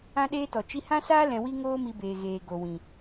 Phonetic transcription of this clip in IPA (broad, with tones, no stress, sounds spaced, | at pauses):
ã˦ ɗ eː˦ t ɔ˨ t͡ʃ i˧ h ã˦ s aː˦ l ɛ̃˧ w i˦ ŋ oː˦ m i˧ b eː˨ ɣ eː˨ ɡ o˨ w ĩ˨